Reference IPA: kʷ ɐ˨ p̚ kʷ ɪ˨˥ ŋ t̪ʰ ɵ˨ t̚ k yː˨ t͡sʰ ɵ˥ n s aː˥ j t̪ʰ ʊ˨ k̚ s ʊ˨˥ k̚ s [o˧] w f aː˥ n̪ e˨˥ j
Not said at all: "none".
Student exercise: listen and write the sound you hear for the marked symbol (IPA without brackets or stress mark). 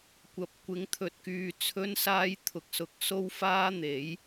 o˥